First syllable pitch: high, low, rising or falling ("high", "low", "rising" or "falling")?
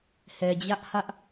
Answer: low